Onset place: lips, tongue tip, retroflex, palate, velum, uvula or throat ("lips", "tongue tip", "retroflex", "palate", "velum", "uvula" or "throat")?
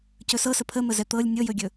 palate